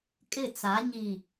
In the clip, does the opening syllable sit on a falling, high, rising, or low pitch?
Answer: falling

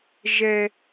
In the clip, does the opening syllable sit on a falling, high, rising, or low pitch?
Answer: high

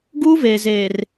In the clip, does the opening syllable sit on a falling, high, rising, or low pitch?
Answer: high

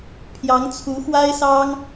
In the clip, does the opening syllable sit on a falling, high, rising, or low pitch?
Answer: rising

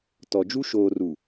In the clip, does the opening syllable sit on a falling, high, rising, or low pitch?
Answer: low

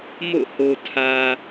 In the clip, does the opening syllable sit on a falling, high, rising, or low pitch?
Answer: falling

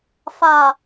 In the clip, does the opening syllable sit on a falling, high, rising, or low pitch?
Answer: low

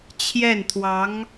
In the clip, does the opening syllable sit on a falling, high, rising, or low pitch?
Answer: falling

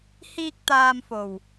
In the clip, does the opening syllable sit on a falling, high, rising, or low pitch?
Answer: high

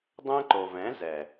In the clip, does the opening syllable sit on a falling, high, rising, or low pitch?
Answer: high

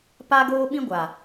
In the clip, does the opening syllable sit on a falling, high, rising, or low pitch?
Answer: high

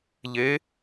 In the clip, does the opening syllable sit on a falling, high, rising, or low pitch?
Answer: rising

